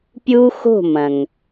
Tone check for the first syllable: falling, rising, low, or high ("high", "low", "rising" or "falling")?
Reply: high